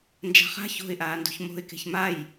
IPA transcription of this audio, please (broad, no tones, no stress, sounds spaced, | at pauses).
n d͡ʒ a̤ χ a̤ ç o̤ ɪ̯ ʔ aː n d ṳ ç m o̤ ɪ̯ k e̤ ç m a j